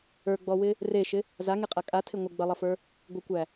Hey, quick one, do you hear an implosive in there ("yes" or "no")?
no